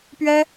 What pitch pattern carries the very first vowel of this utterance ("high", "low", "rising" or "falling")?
high